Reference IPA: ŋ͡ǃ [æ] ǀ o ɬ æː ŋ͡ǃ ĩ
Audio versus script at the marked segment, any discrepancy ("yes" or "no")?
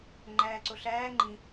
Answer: yes